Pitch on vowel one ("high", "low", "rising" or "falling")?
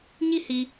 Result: falling